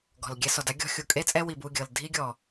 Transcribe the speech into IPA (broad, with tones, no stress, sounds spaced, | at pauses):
ɡ ɔ̤˨ l ɡʲ ɛ˧ s ɔ˨ d a˦ ɡʲ ɔ̤˧ xʲ u˨ kʼ e˦ t͡sʼ ɛ˦ w i˨ b u˦˨ ɡʲ ɤ˨ l dʱ i˦ ɡʲ ɔ˨